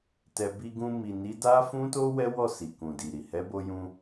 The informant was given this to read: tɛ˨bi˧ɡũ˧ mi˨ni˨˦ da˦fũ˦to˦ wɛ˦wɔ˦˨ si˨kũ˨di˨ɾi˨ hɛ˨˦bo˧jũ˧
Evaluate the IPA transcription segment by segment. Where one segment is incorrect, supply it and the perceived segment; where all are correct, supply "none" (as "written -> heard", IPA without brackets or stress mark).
none